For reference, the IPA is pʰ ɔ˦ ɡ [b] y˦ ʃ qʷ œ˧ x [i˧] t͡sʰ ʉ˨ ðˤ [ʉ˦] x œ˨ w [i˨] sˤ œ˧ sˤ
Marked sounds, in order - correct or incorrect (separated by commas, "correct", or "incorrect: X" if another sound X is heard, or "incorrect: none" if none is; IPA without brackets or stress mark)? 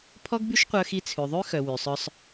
correct, correct, correct, incorrect: y˨